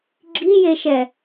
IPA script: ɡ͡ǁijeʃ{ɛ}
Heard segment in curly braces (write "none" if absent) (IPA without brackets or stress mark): ɛ